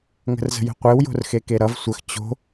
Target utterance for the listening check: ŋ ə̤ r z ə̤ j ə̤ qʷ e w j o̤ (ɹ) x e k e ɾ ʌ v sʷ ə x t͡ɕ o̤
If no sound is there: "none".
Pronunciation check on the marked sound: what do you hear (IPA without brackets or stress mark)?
r